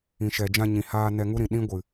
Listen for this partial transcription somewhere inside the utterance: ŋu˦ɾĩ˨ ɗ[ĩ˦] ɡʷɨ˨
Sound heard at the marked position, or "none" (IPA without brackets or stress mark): ĩ˦